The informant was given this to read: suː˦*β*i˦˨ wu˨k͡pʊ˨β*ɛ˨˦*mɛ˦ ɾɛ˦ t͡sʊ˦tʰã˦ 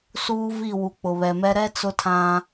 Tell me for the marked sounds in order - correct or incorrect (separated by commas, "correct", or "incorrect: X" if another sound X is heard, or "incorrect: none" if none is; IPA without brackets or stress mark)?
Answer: incorrect: v, incorrect: ɛ˨